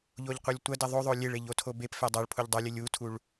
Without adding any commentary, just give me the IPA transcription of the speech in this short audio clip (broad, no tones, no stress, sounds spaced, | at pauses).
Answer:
ʎ o ʎ qʷ ɛ lʲ tʷ ɐ d ɛ ðˤ o ðˤ o lʲ e ɭ e ʎ o tʰ o b e p f ɛ dˤ ɐ ɭ pʰ u ʎ dˤ o lʲ ɘ lʲ u tʰ u ɭ